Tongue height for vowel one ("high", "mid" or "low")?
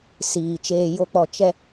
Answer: high